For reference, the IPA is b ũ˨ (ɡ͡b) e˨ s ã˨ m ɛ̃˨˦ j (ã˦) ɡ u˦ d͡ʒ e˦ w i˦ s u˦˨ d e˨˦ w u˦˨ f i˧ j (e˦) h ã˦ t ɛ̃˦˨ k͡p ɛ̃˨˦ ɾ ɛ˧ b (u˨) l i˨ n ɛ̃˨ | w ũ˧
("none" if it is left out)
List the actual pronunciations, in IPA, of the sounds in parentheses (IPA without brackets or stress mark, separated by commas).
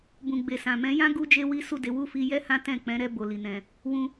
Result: ɡ͡b, ã˦, ɛ˦, o˨